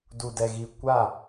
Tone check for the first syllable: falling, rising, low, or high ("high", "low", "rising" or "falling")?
low